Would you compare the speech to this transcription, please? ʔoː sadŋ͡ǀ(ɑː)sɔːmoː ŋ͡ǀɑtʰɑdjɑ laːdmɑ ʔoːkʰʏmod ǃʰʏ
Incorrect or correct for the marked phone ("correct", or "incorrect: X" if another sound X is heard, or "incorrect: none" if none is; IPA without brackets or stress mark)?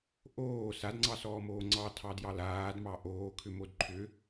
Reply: incorrect: ɑ